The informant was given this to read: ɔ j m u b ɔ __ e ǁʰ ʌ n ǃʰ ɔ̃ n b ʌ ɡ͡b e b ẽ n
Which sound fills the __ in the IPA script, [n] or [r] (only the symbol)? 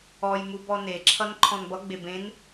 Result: n